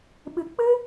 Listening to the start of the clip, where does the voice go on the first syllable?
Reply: low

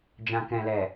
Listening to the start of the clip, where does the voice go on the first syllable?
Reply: low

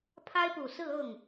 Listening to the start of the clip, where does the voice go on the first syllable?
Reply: high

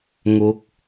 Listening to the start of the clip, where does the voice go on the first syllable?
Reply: rising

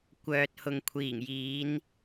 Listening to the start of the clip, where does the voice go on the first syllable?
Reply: low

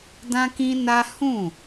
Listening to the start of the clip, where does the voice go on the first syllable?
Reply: high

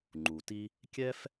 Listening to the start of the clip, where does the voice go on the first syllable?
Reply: low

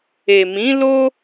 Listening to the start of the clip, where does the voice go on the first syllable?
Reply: low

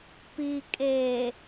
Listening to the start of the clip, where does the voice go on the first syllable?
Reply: low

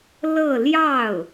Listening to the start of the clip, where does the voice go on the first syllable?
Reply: falling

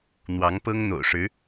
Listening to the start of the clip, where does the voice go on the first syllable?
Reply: rising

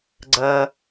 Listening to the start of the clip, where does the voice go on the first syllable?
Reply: low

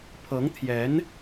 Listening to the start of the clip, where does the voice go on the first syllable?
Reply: rising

